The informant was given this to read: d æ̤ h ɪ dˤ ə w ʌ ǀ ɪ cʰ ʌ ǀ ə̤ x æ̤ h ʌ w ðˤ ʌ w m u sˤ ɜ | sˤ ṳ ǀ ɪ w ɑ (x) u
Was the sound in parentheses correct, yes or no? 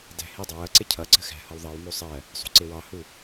no